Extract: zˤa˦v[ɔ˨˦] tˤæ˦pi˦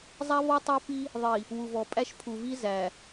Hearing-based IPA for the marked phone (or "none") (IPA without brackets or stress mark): ɔ˦